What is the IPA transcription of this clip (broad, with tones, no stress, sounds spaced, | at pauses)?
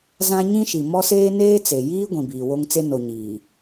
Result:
z ã˦ ɲ ĩ˦ ʃ i˨ m ɔ˦ s eː˦ n eː˦ t͡s e˨ j iː˦ ɡʷ ĩ˨ b iː˨ w o˦ ŋ t͡s e˦ n o˨ ɲ iː˨